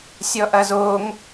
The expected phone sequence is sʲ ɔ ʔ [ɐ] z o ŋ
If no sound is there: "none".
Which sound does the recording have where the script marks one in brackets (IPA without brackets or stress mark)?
ɐ